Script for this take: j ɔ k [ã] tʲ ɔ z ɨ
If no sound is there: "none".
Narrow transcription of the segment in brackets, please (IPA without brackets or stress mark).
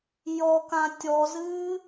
ã